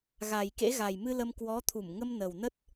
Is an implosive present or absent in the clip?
absent